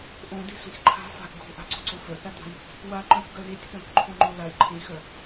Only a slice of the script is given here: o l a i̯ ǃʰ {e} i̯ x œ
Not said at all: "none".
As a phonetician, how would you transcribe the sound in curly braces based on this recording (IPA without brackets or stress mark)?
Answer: ẽ